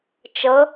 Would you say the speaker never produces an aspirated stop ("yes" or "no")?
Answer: yes